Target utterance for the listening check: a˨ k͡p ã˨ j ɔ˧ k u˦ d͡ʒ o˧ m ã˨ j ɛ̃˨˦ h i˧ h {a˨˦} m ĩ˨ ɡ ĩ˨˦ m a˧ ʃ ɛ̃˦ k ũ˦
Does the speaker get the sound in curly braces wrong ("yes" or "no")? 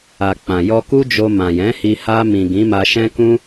yes